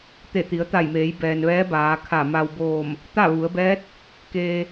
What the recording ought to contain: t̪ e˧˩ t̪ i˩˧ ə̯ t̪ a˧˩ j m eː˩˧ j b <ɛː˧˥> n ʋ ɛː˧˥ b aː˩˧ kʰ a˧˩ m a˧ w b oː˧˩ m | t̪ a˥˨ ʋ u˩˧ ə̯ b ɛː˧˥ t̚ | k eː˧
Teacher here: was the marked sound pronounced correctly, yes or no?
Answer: no